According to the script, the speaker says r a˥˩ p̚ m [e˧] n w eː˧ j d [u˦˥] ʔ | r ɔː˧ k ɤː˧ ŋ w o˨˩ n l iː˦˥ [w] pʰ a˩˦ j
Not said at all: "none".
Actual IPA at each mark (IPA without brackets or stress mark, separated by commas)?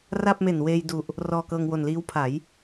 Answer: e˨˩, u˨˩, w